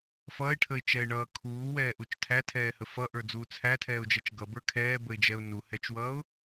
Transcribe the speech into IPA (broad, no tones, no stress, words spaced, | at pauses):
fʌːɪ̯ʈʰəɪ̯t͡ʃɛɪ̯ɳʌː kʰuːwɛːʔut͡ʃ tʰætʰɛːhə fʌʔə˞d͡zuː t͡sʰætʰɛːʊ̯d͡ʒɛt͡ʃ ɡʌbə˞ kʰɛːbəɪ̯d͡ʒɛʊ̯ nuhɛt͡ʃwʌːʊ̯